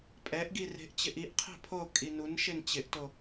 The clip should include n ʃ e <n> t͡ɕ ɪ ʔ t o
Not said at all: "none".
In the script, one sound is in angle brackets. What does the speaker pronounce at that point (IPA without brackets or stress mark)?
n